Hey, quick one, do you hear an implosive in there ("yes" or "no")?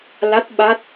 yes